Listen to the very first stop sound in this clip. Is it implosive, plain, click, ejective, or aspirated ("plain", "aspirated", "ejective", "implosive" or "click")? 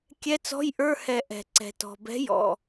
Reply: plain